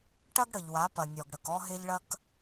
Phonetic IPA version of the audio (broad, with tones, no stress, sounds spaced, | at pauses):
ʈ ɐ˦ ɡ ɽ ə˨ ʎ w a˨˦ p ɐ˨ nʲ ɔ˨ ɡ ɽ ə˨ k ɔ˦ ɦ e˦ ʎ ɭ ɐ˦ k